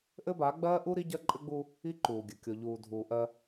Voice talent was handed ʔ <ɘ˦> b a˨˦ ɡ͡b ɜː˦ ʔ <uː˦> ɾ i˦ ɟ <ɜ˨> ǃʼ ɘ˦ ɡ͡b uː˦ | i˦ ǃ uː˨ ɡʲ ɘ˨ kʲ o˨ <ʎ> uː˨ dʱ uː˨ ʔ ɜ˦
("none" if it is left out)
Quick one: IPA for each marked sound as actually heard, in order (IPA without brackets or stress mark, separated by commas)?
ɘ˦, u˦, ɜ˦, ʎ